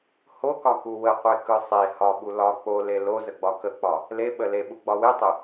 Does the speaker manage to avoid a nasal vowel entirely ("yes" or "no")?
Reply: yes